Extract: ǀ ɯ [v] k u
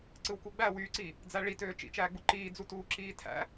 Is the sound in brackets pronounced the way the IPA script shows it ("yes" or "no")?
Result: no